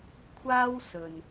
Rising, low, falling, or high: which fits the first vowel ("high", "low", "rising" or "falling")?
high